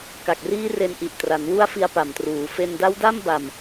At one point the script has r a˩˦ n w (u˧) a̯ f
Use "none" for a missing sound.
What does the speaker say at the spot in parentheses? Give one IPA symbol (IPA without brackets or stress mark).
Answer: u˦˥